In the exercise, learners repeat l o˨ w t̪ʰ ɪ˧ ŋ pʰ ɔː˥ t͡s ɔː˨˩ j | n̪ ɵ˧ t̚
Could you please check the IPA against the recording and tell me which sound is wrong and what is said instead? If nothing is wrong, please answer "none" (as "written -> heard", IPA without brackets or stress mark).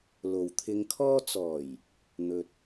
pʰ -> kʰ